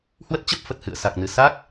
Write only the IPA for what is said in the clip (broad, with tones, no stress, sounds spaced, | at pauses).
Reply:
h w ə˦˥ t̚ t͡ɕ ə˦˥ p̚ f ə˨˩ t̚ h ɨ̰˧˨ ə̯ s a˨˩ k̚ n ɨ˨˩ s a˦˥ k̚